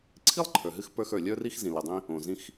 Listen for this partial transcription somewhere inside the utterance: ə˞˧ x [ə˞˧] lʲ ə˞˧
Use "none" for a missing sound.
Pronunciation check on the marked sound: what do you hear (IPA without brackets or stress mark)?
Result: ə˞˩